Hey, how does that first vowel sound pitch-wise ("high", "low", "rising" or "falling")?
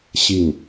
falling